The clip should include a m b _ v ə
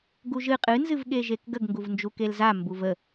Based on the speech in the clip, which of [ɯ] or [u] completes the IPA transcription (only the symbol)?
u